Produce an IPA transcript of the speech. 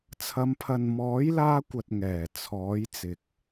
t͡sʰ ɐ˨˧ m pʰ ɐ˨ n m ɔː˨˥ j l aː˧ kʷ ɐ˨ t̚ ŋ ɛː˨˩ t͡sʰ ɔː˨˥ j t͡s ɪ˨ k̚

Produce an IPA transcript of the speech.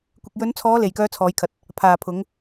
kʷ ɪ˨ k̚ j ɵ˨˧ n t͡sʰ ɔː˨˧ l e˨ j k œː˧ t͡sʰ ɔː˨˧ j kʰ ɐ˨ t̚ | pʰ aː˨ pʰ ʊ˨˧ ŋ

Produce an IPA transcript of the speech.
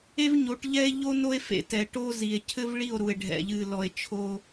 e˦ v ɲ o˨˦ ʈ ʎ ɛ˦ e̯ ʎ o˦ n o˦ e̯ f ḛ˨˦ t ɛ˨ ʈ o˦ z i˨ e̯ cʰ ɘ˦ v ɭ i˦˨ o̯ ɾ u˨ e̯ ɖʱ ɛ̰˨ ʎ ɨ˨ l ɔ˨ e̯ t͡ʃʰ o˦

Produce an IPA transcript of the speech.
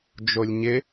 d͡ʒ o lʲ ɲ ɪ

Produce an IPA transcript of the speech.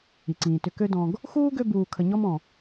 i˩ ǀ ĩː˩ t ʏ˨ k ø˦ d ɔ̃˨ ɡ | x uː˥ ɡ ø˦ b uː˨ kʰ ə˨ ɲ ɔ˦ m ɔ̃˩

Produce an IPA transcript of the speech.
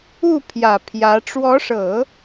u˥˩ pʰ j ä˨˩ pʰ j ä˧˥ ʈ͡ʂ w ɔ˧˥ ʂ ɤ˨˩˦

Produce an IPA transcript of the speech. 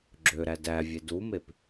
ɡ͡ǁ ø ɾ æ d æ vʲ e d u m e p

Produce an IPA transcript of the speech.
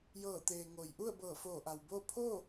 j ɤː˧˩ t̪ eː˩ ŋ o˩ j ʔ u˥˨ ə̯ b ɤː˧˩ f oː˧˩ ʔ a˩ w b oː˥˨ pʰ o˥˨

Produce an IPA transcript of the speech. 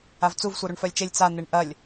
a v t͡s u v sʷ œ ɾ u ɳ f œ lʲ t͡ʃ e lʲ t͡s a n̪ e ɳ ʔ ɐ lʲ

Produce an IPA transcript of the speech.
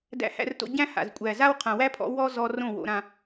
d æ̰˧ h æ̰˧ r t o̰˧ ɟ æ̃˦ h a̰˨ z kʷʼ æ˨ z a˦ w qʰ ã˨ w æ˦ pʰ ɔ̰˨˦ w ɔ˦ z ɔ˧ r õ˦˨ w o̰˧ ɾ ã˧

